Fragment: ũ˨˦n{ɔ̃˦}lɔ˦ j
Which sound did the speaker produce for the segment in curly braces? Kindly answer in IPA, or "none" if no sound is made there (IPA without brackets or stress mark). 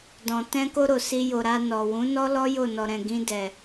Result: ɔ˦